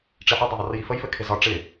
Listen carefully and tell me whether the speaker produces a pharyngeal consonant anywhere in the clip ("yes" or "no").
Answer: yes